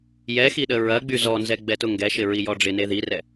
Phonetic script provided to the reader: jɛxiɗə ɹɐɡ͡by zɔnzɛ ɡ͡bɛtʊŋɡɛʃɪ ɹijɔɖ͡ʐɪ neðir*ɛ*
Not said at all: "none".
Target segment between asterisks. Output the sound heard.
ɛ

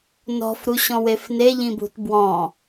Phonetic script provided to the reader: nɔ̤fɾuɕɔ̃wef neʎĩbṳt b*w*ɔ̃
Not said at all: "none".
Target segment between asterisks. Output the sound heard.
w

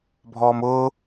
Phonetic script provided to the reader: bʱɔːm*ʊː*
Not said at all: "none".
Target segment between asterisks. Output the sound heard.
ʊː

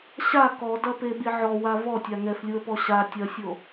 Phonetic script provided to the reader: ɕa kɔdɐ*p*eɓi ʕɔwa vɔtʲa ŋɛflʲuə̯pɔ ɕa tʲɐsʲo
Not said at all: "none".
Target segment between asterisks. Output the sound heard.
p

